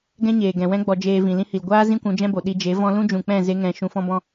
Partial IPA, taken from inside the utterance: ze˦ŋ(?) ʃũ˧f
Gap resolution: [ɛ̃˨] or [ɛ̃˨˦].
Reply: ɛ̃˨˦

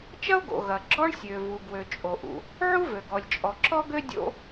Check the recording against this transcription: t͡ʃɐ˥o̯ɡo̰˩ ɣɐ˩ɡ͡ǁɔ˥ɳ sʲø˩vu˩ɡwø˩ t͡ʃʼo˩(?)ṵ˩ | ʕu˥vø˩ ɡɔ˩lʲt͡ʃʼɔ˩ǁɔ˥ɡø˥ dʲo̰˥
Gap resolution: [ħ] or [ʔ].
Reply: ʔ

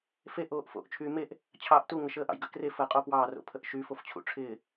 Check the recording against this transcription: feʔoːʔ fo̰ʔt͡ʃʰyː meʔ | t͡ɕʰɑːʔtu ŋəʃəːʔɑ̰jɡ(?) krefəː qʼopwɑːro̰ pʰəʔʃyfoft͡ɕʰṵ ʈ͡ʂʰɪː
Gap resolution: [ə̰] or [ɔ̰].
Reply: ə̰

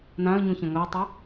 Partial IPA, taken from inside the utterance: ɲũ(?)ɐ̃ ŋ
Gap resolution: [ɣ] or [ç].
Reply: ç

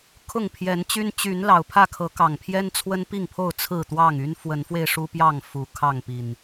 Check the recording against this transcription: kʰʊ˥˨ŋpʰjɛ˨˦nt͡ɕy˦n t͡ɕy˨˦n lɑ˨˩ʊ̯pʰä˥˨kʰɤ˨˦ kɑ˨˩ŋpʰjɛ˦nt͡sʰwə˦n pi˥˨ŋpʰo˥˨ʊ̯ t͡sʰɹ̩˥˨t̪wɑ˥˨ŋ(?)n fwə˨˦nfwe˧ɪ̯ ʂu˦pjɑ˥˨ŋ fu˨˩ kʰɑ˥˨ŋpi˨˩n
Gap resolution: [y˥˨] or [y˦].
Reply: y˦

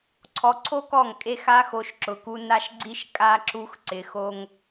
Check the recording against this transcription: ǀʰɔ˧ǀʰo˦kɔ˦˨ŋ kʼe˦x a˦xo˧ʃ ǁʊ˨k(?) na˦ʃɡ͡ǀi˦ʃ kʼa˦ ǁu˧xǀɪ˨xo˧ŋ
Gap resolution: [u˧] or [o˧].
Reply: u˧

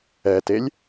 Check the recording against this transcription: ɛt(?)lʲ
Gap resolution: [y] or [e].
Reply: e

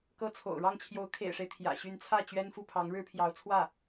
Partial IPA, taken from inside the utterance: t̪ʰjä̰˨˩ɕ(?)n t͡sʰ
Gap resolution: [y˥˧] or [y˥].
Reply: y˥˧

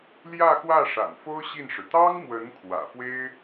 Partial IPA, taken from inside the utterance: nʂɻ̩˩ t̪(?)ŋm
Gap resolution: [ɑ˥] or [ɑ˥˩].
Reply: ɑ˥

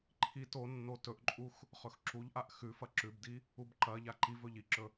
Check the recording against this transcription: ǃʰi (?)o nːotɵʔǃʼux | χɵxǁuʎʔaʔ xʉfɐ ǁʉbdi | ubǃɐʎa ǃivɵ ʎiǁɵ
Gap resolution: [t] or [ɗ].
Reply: t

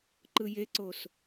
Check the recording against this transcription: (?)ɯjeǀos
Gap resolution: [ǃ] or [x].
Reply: ǃ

